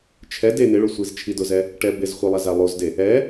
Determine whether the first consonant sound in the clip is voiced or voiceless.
voiceless